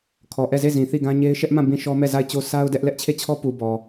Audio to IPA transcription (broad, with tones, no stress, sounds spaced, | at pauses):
kʰ ɔ˨ ʔ ɛ˦˨ z e˦˨ z ĩ˨ θ i˦˨ ɡ ã˦ ɲ e˦ ɪ̯ ʃ ɛ˦ ʔ m ã˦˨ b ĩ˦˨ ʃ ɔ˦ m ɛ˦˨ z a˦˨ ɪ̯ t͡ɕ o˦ sʰ a˦ ʊ̯ d ɛ˦ ʔ l ɛ˦ ʔ t͡ɕʰ e˦˨ t͡ɕʰ ɔ˦ p u˨ b ɔ˨